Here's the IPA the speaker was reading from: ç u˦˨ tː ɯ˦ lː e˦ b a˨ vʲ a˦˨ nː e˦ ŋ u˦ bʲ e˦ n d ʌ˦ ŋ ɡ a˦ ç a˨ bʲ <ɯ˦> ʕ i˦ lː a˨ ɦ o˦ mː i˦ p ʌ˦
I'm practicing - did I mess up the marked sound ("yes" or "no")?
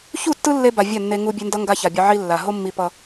yes